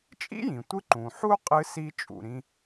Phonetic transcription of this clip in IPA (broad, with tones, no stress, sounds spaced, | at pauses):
t͡ʃʼ ḭ˥ j ĩ˩ tʷ ɨ˥ ǃ ũ˩ ħ u˥ qʼ ɨ˧ s i˧ t͡ʃʼ ṵ˩ ɾ ĩ˧